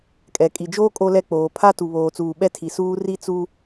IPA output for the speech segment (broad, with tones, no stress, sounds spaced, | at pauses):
kʼ ɛ˨ kʼ i˨ d͡ʒ oː˦ kʼ o˦ l ɛ˦ k͡p oː˨ pʰ a˦ t u˨ β oː˨ t͡s uː˨ ɓ ɛ˦ tʰ i˨ s uː˦ r i˦ t͡s u˦